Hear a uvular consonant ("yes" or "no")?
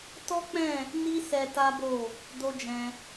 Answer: no